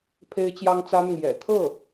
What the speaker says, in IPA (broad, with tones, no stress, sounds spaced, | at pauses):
pʰ e˥ ɪ̯ t͡ɕ j ɑ˥ ŋ t͡s ä˥ n̪ ʊ˨ ŋ j ɛ̰˨˩ t̪ʰ ɤ˥˩